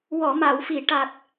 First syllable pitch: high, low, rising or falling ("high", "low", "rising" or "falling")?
low